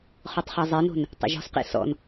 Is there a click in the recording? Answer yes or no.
no